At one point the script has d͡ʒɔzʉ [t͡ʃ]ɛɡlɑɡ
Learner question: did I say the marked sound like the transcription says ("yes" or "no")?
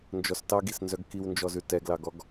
no